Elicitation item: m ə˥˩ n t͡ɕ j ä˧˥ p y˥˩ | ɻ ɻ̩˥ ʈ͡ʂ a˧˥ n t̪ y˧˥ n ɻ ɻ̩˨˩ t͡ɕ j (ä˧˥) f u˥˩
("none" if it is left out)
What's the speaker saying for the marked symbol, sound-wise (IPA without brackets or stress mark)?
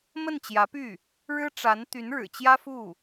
ä˥